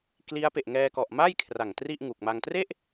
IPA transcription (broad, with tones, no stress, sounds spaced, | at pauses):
k l i˦˥ a̯ p e˨˩ ʔ ŋ ɛː˧ k ɔ˨˩ ʔ m a˥˩ j kʰ r a˨˩ ŋ t r i˥˩ ʔ ŋ u˨˩ k̚ m a˧ ŋ t r e˥˩ ʔ